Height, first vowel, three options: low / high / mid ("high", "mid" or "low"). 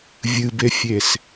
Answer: high